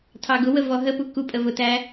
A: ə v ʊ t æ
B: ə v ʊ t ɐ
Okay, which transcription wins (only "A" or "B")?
A